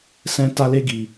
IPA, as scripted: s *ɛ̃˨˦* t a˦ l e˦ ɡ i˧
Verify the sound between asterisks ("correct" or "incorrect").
incorrect